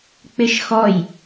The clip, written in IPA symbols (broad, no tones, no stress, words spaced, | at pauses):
k͡pɪʃxɔj